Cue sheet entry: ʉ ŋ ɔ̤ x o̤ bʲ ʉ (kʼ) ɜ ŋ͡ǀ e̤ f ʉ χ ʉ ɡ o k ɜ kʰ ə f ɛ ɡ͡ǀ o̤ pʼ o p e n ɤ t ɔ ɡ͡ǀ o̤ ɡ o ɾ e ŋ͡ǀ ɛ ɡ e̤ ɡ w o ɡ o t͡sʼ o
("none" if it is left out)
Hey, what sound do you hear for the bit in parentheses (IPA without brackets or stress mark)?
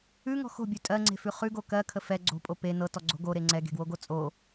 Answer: tʼ